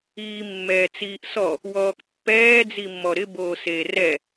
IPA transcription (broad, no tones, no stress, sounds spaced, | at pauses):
iː mː ɛː t͡s iː ʔ s ɔ | w ɔː k pː ɛː d͡z i mː ɔ ɾ ɪ b oː s eː r ɛ